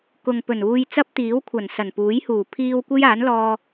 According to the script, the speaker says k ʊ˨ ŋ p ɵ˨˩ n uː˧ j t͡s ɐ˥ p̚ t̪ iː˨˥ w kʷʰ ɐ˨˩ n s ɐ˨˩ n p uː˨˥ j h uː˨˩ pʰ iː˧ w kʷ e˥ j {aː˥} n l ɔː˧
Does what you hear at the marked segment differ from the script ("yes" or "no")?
yes